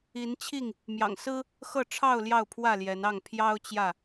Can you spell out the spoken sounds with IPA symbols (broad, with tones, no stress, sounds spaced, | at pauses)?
i˨˦ n t͡ɕʰ i˥˨ ŋ | m j ɑ̰˨˩ ŋ s ɹ̩˦ | x ɤ˥˨ ʈ͡ʂʰ ɑ˥˨ ʊ̯ l j ɑ˥˨ ʊ̯ pʰ w ä˥˨ l j ɛ˨˦ n ɑ˥˨ ŋ pʰ j ɑ˦ ʊ̯ t͡ɕ j ä˥˨